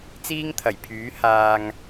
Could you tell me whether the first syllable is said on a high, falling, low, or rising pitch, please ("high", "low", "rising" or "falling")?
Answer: high